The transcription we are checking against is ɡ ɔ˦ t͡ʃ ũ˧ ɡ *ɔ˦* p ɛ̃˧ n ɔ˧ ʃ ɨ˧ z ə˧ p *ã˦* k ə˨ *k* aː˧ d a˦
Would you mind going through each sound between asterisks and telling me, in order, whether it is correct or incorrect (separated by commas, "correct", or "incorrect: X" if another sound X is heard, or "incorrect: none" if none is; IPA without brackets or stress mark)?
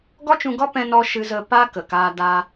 correct, incorrect: a˦, correct